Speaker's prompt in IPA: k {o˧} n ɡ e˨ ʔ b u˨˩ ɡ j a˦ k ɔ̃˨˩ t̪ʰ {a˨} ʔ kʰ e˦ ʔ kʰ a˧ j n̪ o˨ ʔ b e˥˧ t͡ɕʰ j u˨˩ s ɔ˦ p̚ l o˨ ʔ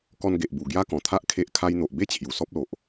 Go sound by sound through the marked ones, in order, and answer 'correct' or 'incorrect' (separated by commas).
incorrect, incorrect